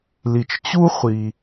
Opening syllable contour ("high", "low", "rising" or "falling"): low